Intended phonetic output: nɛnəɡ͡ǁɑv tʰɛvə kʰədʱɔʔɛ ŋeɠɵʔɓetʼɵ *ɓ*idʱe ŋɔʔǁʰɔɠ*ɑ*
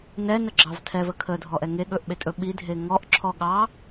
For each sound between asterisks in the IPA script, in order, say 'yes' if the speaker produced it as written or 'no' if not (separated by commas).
yes, yes